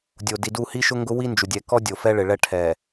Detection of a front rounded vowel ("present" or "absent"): absent